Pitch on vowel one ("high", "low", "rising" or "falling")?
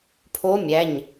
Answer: rising